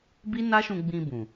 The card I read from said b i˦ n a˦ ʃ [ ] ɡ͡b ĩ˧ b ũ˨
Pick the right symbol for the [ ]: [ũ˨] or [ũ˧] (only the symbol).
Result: ũ˧